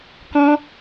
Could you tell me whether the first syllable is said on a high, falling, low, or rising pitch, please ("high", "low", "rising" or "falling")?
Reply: high